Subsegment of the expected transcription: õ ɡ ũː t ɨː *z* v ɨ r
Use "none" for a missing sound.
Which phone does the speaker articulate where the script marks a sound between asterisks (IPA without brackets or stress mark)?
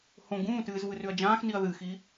z